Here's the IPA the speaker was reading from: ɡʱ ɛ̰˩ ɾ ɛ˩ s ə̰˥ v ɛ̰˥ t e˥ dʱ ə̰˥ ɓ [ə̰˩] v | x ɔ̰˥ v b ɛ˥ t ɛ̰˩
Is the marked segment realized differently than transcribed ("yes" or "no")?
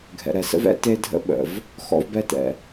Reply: no